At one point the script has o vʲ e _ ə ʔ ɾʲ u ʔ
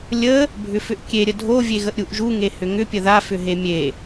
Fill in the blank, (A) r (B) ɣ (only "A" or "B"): B